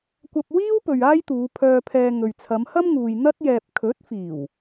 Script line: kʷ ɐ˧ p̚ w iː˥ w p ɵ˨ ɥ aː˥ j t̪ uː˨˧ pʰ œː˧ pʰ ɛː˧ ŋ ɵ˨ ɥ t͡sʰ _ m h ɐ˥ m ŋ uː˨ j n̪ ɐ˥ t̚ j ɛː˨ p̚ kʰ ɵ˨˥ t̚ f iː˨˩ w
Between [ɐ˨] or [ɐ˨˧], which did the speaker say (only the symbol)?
ɐ˨˧